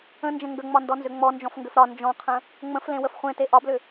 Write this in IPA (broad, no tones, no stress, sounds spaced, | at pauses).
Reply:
ə̃ n d͡ʒ ə̃ ŋ ɡ ə ŋ͡m ɒ n d ɔ n z ʏ ŋ͡m ɔ n d͡ʒ ɔ̃ f ŋ ɡ ʏ f ɾ ɒ n d͡ʒ ɔ̃ qʰ ə̃ | ŋ͡m ə̃ f l ẽ w ə f χʷ ẽ t e ʔ ɒ b l ʏ